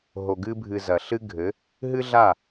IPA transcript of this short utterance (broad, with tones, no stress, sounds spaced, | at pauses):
ɦ o˨ ɡ ɨ˦ bʱ ɨ˧ z ɐ˨ ɬ ɨ˦ ɡʱ ɘ˨˦ | ɦ ɨ˦ ɮ a˦˨